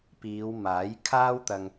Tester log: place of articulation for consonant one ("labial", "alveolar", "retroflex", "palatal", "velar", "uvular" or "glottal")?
labial